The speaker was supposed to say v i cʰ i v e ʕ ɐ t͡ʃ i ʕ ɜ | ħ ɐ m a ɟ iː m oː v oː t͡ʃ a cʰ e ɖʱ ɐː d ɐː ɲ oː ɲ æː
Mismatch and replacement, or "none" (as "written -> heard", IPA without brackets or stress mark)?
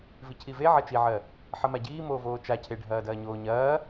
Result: æː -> ɐː